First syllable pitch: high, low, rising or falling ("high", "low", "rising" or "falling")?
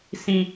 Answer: high